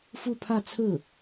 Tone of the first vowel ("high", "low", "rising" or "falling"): falling